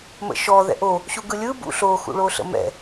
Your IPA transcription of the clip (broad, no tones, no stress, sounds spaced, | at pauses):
m ə̰ ʃ ɔ ð ɛ̰ ʔ o | ɕ u ɡ ɯ lʲ ɯ b ṵ ɬ o x ṵ ɭ o ɬ ə̰ m ɛ̰